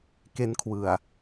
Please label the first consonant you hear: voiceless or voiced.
voiceless